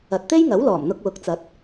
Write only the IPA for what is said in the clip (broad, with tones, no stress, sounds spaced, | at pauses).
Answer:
ɐ˨ t̚ t̪ e˥ j ŋ ɐ˨˥ w l ɔː˨˩ m n̪ ʊ˧ k̚ w ʊ˨˥ k̚ t͡s ɐ˨˥ t̚